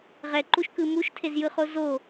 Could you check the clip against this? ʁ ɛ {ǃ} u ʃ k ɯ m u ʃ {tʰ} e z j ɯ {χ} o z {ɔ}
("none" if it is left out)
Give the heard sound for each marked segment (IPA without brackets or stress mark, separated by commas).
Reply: ǃ, tʰ, χ, o